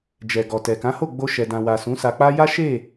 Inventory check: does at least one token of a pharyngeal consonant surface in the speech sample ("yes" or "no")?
no